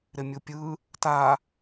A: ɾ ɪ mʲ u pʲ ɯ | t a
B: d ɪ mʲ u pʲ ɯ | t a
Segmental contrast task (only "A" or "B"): A